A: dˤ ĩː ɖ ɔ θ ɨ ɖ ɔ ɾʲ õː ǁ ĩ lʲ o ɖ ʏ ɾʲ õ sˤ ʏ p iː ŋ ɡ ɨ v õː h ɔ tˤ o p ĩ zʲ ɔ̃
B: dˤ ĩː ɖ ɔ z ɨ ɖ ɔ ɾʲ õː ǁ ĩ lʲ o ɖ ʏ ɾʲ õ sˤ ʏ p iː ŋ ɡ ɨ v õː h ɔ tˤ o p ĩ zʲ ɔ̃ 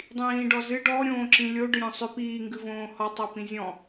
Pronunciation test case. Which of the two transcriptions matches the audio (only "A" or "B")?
B